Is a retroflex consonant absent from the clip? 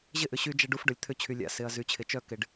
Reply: no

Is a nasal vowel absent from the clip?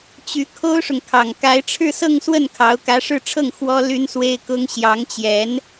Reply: yes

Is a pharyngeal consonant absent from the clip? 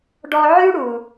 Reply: no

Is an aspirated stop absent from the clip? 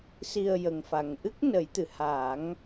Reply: yes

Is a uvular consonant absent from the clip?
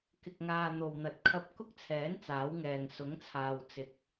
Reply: yes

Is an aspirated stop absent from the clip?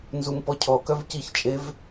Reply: no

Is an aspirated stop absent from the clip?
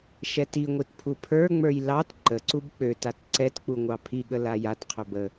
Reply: no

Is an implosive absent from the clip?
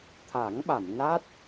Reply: no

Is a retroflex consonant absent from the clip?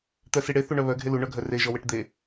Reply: no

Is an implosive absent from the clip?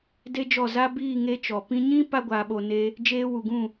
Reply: no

